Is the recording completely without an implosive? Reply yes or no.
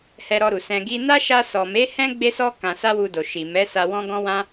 yes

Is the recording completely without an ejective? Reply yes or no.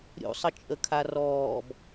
no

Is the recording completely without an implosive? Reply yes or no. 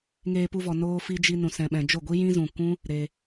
no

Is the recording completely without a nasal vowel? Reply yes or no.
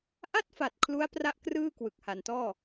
yes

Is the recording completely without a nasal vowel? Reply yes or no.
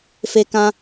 no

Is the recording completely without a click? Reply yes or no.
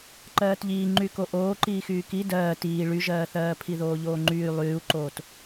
no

